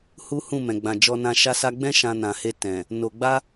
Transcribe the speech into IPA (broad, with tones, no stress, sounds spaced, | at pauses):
h u˦ h ũ˦˨ m ɛ̃˨ ɡ͡b ã˨ d͡ʒ ɔ˧ n ã˧ ʃ a˧ s a˧ ɡ͡b ɛ̃˦ ʃ ã˧ n ã˨ h e˧ t ɛ̃˨ | n o˧ ɡ͡b a˦